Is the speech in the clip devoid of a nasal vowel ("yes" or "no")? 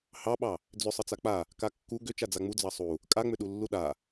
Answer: yes